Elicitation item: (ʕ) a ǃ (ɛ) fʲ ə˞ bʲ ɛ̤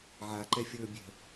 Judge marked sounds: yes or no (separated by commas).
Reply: yes, yes